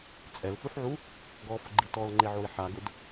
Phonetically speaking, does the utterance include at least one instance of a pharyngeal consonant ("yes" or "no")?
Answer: yes